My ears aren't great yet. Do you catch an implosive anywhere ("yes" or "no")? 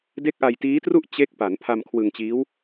no